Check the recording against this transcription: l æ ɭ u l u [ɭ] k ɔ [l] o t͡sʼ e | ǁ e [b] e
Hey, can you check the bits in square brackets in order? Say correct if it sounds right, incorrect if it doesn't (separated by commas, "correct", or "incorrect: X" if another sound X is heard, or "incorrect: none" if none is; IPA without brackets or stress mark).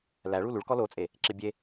correct, correct, incorrect: bʲ